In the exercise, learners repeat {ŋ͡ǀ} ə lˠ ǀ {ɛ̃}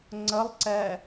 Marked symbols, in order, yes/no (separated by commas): yes, no